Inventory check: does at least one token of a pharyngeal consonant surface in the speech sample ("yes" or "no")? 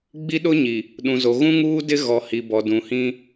no